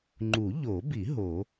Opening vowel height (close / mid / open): close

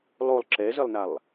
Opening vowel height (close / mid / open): mid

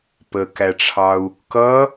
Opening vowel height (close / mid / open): mid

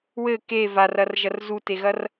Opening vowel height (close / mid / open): mid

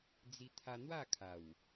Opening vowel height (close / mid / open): close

